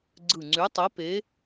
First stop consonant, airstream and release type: click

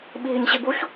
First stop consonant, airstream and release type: implosive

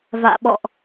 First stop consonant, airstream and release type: implosive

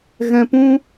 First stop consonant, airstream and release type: plain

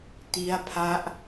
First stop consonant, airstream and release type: plain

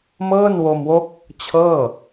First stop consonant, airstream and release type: plain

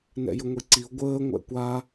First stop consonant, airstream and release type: click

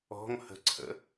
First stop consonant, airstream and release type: click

